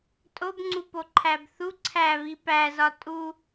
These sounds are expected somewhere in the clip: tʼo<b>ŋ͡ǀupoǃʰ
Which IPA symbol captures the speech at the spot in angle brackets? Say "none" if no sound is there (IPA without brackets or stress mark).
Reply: b